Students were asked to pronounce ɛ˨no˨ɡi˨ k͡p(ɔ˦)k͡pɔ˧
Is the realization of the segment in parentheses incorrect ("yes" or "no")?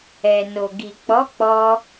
yes